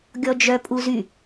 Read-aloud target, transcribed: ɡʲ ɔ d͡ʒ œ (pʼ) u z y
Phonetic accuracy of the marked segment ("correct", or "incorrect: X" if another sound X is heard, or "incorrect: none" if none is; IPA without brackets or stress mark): correct